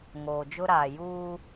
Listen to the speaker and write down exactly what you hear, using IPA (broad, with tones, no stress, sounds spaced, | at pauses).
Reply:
ŋ oː˨ d͡ʒ ʊ˦ ɾ aː˨ j uː˦